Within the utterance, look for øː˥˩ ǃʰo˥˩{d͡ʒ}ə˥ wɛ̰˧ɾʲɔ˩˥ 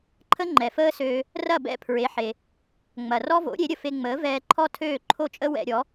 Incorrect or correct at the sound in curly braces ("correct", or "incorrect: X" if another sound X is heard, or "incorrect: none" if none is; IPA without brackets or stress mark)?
incorrect: t͡ʃʼ